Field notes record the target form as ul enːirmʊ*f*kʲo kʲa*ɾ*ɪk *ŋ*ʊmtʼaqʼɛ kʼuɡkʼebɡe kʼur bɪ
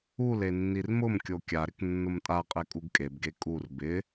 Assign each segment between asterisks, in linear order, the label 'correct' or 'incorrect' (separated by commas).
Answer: incorrect, correct, incorrect